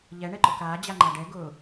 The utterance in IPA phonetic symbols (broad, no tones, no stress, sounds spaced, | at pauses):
ʎ ɛ ɳ ɛ ǃ ʊ k aː d͡ʑ a ŋ͡ǃ a ɖ ɛ ɡ ʊː